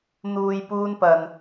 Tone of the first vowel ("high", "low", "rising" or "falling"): low